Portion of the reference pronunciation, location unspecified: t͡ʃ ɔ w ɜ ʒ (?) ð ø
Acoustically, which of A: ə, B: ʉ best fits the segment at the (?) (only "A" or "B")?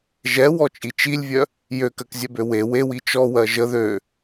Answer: A